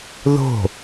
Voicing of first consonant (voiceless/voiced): voiced